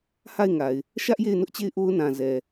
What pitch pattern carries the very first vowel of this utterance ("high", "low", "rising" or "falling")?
falling